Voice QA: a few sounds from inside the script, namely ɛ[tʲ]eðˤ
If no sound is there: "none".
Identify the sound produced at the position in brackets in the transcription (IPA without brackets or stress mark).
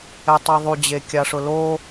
tˤ